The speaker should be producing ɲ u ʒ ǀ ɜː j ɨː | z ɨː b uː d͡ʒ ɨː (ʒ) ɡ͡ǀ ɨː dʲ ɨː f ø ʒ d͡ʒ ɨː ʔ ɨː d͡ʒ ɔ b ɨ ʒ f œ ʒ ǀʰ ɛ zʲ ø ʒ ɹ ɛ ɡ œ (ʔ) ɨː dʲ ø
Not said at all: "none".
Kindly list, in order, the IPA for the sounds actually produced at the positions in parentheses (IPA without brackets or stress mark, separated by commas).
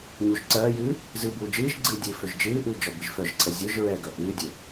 ʒ, ʔ